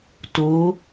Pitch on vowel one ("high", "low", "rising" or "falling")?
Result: rising